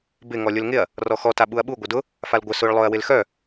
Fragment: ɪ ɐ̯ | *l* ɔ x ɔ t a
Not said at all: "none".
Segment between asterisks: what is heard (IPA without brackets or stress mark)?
r